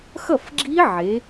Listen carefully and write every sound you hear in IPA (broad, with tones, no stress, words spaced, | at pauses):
xʌ˥˩fɡ͡ǁi˦˥ ʕe˩˧